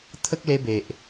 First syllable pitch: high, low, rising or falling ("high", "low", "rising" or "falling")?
high